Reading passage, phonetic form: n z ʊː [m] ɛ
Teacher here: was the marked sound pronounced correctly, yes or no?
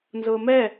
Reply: yes